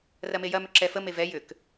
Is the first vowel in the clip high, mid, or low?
low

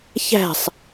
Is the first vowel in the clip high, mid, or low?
low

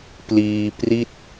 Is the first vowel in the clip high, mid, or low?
high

